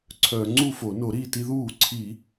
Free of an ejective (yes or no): yes